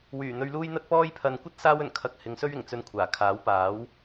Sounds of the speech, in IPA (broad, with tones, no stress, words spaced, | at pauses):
wyː˨˩ n̪ɵ˧ɥ luː˥j n̪ɐ˥t̚pɔː˥jpʰɐ˧n kʷɐ˥t̚ saː˥wɵ˨˩n kʰɐ˨˥k̚ hɪ˨˧ŋsɵ˥ɥ ɪ˨˩ŋ t͡sɵ˧n kʷʰaː˨˩kʰaː˨˥wpaː˨˥w